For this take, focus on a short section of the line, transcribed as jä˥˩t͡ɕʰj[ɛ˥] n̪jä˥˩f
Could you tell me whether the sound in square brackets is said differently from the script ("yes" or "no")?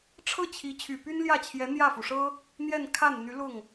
yes